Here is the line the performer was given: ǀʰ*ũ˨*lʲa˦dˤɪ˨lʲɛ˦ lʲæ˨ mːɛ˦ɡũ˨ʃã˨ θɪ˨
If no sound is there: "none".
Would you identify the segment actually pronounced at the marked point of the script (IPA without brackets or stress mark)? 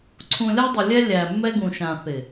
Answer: ũ˨